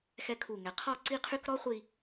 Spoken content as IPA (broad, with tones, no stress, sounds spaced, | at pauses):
x ɛ˥ kʰ u˧˩ ŋ ɛ˩˧ qʰ ɔ˥˧ ǀ i˥˧ qʰ y˥ k ɾ ɔ˥ χʷ i˥˧